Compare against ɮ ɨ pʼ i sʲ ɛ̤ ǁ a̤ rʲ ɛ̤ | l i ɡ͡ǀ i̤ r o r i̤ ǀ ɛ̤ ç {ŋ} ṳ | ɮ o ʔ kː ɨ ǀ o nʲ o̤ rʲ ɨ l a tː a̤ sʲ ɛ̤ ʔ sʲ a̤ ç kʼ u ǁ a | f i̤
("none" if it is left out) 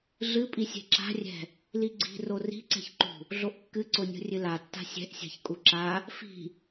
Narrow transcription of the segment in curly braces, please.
ǃ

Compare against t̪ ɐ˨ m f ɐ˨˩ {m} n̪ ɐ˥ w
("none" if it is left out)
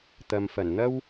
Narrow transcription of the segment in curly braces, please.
n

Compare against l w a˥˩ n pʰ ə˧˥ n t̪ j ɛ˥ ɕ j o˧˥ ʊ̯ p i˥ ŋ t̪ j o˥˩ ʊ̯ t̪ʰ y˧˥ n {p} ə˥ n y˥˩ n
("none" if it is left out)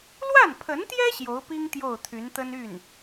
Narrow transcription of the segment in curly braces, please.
t̪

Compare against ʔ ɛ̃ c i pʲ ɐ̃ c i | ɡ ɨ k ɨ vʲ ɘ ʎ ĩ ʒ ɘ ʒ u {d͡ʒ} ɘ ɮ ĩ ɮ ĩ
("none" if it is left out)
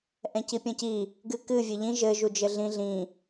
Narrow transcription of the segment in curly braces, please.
d͡ʒ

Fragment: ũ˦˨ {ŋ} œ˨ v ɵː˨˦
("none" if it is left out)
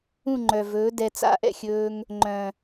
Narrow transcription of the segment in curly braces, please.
ŋ͡ǃ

